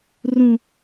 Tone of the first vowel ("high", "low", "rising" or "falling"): low